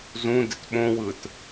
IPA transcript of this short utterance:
z ũ d ɪ t ɓ õ w ɯ t

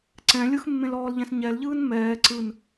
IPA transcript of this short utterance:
ǀ ɛ̃ lʲ ɯ x mː ẽ l ɔː l ʎ ɛ̃ s ɲ ɛ l ʎ ɯː n m ɛː ǀ ɯ n

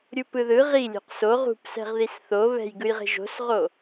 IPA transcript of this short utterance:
ɾʲ u p ɯ ð ɯ ʁ i lʲ o̤ q s o ʁ ṳ p s ɛ̤ ʁ ð i s θ o β ɛ̤ j ɡ ɯ j ʁ e̤ ʒ o̤ s ʁ o

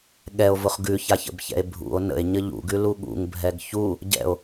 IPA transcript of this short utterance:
ɠ ɛ o̯ v ʊ χ ɡ ʉ ç a ç ə̰ b ç ɛ̰ e̯ bʱ ṵ o̯ n ə̰ e̯ ɲ ə ʎ ṵ ɡ ʉ l u ɠ ṵ ŋ bʱ ɛ ɡ ç u | ɟ ɛ̰ o̯

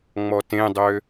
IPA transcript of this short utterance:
ŋ͡m ɔ t ẽ dˤ ø

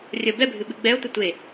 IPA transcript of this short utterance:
rʲ ə b ɛ bʱ ɨ ɓ ɨ ɡ͡b ɛ o̯ t̪ ə tʷ e

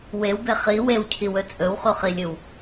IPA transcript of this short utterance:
w e w b e χ i w e w cʰ i w ɵ t͡sʼ ɵ w χ u χ i lʲ ɨ w

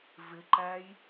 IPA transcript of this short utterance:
v ɪ ǃ æ j

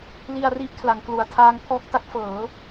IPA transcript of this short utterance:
l i˧ a̯ r i˦˥ ʔ kʰ l a˩˦ ŋ k l u˨˩ a̯ tʰ aː˦˥ ŋ pʰ ɔː˦˥ k̚ t a˦˥ k̚ f ɤː˩˦

